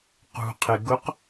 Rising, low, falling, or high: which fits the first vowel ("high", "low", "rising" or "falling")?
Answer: low